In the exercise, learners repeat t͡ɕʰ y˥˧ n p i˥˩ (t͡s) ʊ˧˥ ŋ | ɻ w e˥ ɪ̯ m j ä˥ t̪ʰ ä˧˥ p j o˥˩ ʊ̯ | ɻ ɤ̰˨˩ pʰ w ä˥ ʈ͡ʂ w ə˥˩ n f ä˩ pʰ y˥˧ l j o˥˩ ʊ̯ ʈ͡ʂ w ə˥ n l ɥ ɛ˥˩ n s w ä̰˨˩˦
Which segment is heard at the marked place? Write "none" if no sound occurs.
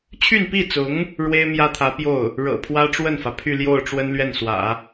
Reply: t͡s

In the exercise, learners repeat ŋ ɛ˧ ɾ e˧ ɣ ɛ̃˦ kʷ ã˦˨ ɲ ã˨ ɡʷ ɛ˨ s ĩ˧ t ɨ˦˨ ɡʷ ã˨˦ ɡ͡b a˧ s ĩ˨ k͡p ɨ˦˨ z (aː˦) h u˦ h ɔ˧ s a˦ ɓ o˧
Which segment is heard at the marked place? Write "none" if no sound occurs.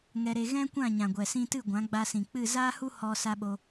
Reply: aː˦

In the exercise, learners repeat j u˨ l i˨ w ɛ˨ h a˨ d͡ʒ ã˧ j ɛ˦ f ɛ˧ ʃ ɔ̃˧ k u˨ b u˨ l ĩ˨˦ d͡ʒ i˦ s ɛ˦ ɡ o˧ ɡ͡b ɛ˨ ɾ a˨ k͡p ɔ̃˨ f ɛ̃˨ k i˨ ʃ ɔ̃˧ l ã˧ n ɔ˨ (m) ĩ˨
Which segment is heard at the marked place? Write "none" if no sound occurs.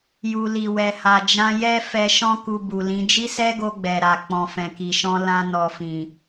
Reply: f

